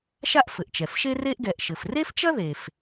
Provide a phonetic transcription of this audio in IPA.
ʃ a˥ ʔ f ɘ˩ ʔ t͡ʃ ɛ˩ f ʃ e˥ r e˥ ʔ ɡ ɛ˩ ʔ ʃ ɘ˩ f r e˥ f t͡ʃ ɐ˥ ð e˩ f

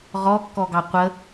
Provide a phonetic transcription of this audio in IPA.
ʁ ɔ kː ɔ ɡ ɑ qʷ ə

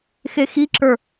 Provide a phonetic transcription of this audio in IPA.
x e x i ǁ ə˞

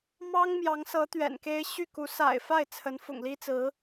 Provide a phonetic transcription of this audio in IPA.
m ɑ˥ ŋ m j ɑ˧˥ ŋ s ɤ˧˥ t̪ ɥ ɛ̰˨˩ n k e˥ ɪ̯ ɕ y˥˩ k u˧˥ s a̰˨˩ ɪ̯ f a˥˩ ɪ̯ t͡sʰ ə˧˥ n f ʊ̰˨˩ ŋ l i˥ t͡s ɹ̩˧˥

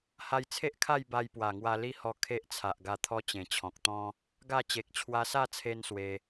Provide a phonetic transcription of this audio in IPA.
h a˧ j t͡sʰ e˦ ʔ kʰ a˥˧ j b a˧ j p w a˨˩ ŋ w a˧ l i˦ h ɔ˧ kʰ e˦ ʔ t͡sʰ a˨ ʔ ɡ a˧ t̪ʰ ɔ˦ t͡ɕ ẽ˨˩ t͡ɕʰ ɔ̃˨ k̚ t̪ ɔ̃˦ | ɡ a˥˧ t͡ɕ e˨ k̚ t͡ɕʰ w a˧ s a˥˧ t͡sʰ e˧ n s w e˧

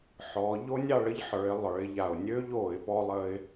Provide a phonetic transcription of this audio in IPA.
ħ ɔ˩˧ ʎ o˥ nʲ ɑ˥˨ ɭ ə˥ ʎ ħ ə˞˩˧ ɪ̯ lˠ ə˞˩˧ ɪ̯ ʎ a˨˩ ʊ̯ nʲ ø˥ ʎ o˧˩˧ ɪ̯ p ɔ˥ lˠ ə˥ ɪ̯

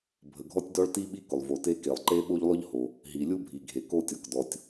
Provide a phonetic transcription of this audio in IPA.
bʱ ə˩ ɡʱ ɔ˥ tʲ d ɔ˥ ɭ t i˥ ɓ i˥ k ʊ˩ lˠ v o˩ t e˥ k e˩ lˠ ǃ e˥ ɓ o˥ ʎ lˠ ʊ˥ ʎ h o˩ | ɦ i˩ lʲ u˥ bʱ i˩ ɡʱ e˩ k o˥ tʲ ɔ˩ k d ɔ˩ tʲ

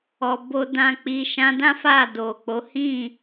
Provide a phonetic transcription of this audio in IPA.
ɔ˨ b o˨ d ã˨ k͡p i˨ ʃ ã˧ d ã˦ f a˦˨ d o˨ k͡p o˨˦ h ĩ˦˨

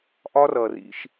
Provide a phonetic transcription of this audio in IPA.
ʔ ɒ˦ r ʌ˨ r ḭ˧ ʃ

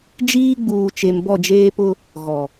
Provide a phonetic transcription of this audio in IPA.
d͡ʒ iː˦ ɡ͡b uː˨ t͡ʃ e˨ m b ɔ˦˨ d͡ʒ eː˦ p ʊ˦ | ɣ ɔ˨

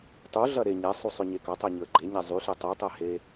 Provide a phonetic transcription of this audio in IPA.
tˤ u ɮ ɐ ɾ e ɲ ɛ sˤ u sˤ ʏ ɲ e k ɐ tˤ ɛ ɲ ʏ ə̯ ɡ͡ǃ e ɲ ɛ zˤ y ɬ e tˤ y tˤ ɛ h e

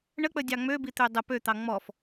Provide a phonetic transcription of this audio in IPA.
ɳ ə k͡p ə dʲ ɑ ŋ͡m ø b i t̪ ø dˤ ə p ø t̪ ɑ ŋ͡m ɔ f

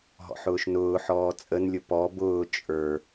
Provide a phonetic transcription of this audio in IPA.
ɦ ɔ̰ ħ ʊː ʃ n ʊː ħ ɔː t͡sʼ ə n lʲ ʊ p ɔ b ʊː t͡ʃʼ ə˞

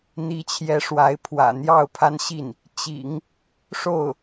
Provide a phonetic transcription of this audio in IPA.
n̪ i˧˥ t͡ɕʰ j ɛ˧˥ ʂ w a˧˥ ɪ̯ pʰ w ä̰˨˩ n̪ j ɑ˥˩ ʊ̯ pʰ a˥ n ɕ i˥˩ n | t͡ɕ ḭ˨˩˦ ŋ | ʂ o˥˩ ʊ̯

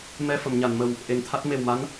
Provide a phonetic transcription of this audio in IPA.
m ɛ˧ f ə˨˩˨ m ɲ a˨˩˨ n m ə˨˩ w | ʔ e˨˩ ŋ t̪ʰ a˦˥ t̚ m e˨˩ w m a˧˥ n

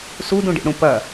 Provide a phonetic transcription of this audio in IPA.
s u d ũ ɖ ḭ ɽ ũ p ɐ

